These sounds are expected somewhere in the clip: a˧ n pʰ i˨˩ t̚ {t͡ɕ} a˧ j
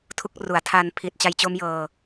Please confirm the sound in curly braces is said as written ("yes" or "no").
yes